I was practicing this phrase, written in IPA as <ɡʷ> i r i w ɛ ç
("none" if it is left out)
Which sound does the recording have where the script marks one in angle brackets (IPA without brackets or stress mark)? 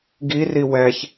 ɡ